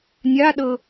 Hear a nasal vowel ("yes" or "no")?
no